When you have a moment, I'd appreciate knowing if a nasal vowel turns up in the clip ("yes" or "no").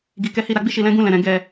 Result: yes